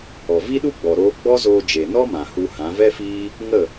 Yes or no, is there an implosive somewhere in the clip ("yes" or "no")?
yes